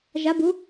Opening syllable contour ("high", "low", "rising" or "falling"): rising